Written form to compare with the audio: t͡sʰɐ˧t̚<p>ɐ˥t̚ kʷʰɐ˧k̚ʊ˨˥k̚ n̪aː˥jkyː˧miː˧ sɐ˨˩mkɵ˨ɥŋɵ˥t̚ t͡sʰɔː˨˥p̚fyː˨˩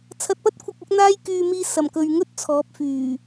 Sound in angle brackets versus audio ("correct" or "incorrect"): correct